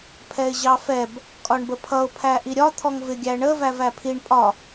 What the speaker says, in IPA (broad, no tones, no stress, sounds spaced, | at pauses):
pʰ ɛ ɪ̯ ʑ ɑ f ɛ b | kʼ ɒ ɳ b ə pʰ ʌ ʊ̯ pʰ æ ʔ i ɾʲ ɒ t̪ʰ ɔ ŋ v ɪ ɡʲ æ ɳ ə v æ v æ pʰ i ɳ pʼ ɒ